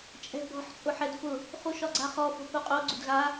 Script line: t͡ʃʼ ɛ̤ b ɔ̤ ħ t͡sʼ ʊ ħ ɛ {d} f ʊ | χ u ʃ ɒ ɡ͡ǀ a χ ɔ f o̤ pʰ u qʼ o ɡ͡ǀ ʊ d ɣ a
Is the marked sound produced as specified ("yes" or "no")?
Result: yes